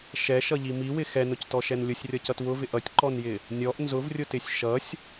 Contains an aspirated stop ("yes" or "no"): no